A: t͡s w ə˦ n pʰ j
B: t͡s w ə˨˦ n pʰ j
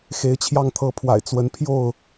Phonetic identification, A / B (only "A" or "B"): B